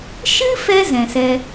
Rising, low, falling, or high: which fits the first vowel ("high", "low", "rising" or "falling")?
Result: high